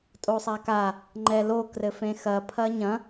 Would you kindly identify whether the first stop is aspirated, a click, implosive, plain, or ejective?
ejective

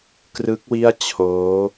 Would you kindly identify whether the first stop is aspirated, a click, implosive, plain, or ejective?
plain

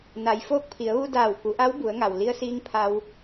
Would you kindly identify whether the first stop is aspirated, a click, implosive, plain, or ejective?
plain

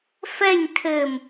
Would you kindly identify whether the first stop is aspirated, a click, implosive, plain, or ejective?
aspirated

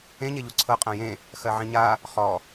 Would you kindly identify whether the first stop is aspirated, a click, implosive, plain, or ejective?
click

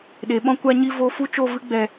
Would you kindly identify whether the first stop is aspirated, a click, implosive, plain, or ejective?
implosive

